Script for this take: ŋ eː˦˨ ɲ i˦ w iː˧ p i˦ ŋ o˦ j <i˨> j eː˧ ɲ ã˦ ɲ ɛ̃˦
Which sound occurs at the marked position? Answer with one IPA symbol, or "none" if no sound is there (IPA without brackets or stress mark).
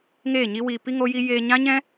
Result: i˦